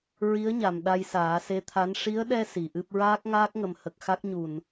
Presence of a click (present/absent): absent